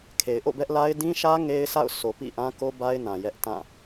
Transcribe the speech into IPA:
kʰ e˨ ɪ̯ ʔ o̰˦˨ b ɛ˦ ʔ l a˦ ɪ̯ d ĩ˦ ʃ ä˦ ŋ e˦ ɪ̯ s a̰˦˨ ʊ̯ s o˨ p ḭ˦˨ ʔ ã˦ k o˦ b a˦ ɪ̯ n ã˨ j ɛ˦ ʔ t ã˦˨

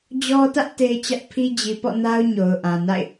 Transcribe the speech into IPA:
d͡ʑ ɔ˦ t ä˦ ʔ t e˦ ɪ̯ t͡ɕ ä˦ ʔ pʰ i˦ d͡ʑ i˨ p ɔ̰˦˨ n a˦ ʊ̯ ɲ o˨ ʊ̯ ʔ ã˨ n a̰˦˨ ɪ̯

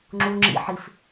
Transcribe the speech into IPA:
ŋ͡ǁ u ŋ͡ǁ ḭ ħ i f

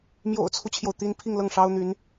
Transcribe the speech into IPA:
m j o̰˨˩ ʊ̯ t͡sʰ u˦ t͡ɕʰ j o˩ ʊ̯ t̪ i˥ n pʰ i˥˧ ŋ l ɤ˥˩ ŋ ʂ ɑ˥ ʊ̯ n̪ y˧˥ n

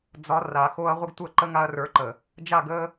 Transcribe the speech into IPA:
d͡z ɒ˨˦ r a˨ x o˧ ɐ̯ ʁʷ ə˦ ɡ tʷ ə˦˨ ǃ ə˦ ŋ a˧ ɐ̯ r ə˞˨˦ ǃ ə˨ | d͡ʒ a˦˨ ɡ ə˦

